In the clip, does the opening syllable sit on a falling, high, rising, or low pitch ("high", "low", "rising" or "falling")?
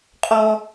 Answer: high